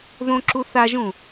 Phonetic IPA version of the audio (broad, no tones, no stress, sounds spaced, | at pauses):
ð õ ǁ u θ a ʒ ũ